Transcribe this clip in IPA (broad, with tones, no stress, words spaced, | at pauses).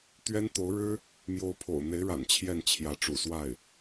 t̪ɥɛ˥nt̪o˧˥ʊ̯ɻɻ̩˥ | mjo˧˥ʊ̯pʰo̰˨˩ʊ̯n̪e˧˥ɪ̯ɻa̰˨˩n t͡ɕʰjɛ˥˩nt͡ɕʰjä˧˥ʈ͡ʂṵ˨˩swa˥˩ɪ̯